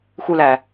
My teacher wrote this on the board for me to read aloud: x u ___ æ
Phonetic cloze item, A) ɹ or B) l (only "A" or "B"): B